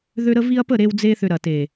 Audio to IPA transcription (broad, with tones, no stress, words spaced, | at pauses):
ðø˦ɾə˦vi˦ɐ̯ pə˦˨ɾe˧wd͡ze˧θʏ˨ ɾɐ˨te˨